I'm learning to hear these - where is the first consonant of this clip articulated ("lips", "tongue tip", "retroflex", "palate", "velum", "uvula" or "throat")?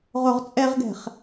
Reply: uvula